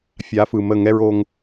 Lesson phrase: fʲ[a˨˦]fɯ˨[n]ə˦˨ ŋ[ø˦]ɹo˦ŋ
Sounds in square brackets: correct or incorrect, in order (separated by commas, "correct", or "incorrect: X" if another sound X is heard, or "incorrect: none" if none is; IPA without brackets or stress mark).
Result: correct, incorrect: m, incorrect: ɛ˦